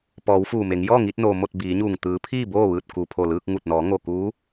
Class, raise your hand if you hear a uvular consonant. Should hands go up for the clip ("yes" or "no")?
no